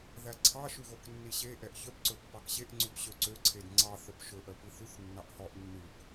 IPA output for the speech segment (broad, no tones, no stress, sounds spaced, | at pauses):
ð æ ǀʰ ɑ ʃ ʉ ɣ o k nː i ɕ e ʔ ɛ ʔ ç œ p ǀ ɵ pː ɑ k ɕ e ʔ ŋ͡ǀ ʉ p ɕ ø ǀ ø ǀʰ e d ŋ͡ǀ ɑ θ œ p ʃ ɵ ʔ œ p i θ ʉ θ nː ɑ ʔ h ɔ ʔ nː ʉ k